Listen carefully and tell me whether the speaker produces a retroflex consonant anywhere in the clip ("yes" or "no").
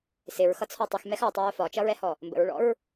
yes